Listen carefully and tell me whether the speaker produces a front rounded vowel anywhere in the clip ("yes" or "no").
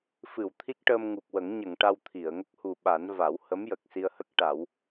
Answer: no